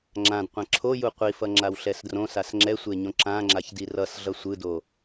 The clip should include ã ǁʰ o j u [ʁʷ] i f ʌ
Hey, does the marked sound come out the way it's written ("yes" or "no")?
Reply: no